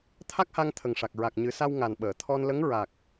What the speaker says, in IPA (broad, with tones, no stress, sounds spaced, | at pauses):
t̪ʰ a˦˥ k̚ h a˧ ŋ t̪ʰ ə˨˩ ŋ ʂ a˨˩ k̚ ɹ a˨˩ k̚ ɲ ɨ˨˩˦ s a˧ w ŋ a˨˩ n ɓ əː˨˩˨ t̪ʰ ɔ˧ n l ə˧˥ ŋ ɹ a˨˩ k̚